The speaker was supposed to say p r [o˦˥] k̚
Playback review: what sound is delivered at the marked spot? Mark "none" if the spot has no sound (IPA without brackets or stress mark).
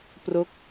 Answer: o˦˥